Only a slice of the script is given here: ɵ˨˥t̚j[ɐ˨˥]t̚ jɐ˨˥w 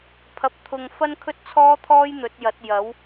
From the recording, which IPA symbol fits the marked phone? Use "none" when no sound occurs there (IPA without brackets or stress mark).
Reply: ɐ˨˥